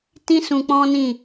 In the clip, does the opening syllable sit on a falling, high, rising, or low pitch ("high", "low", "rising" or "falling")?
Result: high